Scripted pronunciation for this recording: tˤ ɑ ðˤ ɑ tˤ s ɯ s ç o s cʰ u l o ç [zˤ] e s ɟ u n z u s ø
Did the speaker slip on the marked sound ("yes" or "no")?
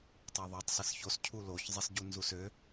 no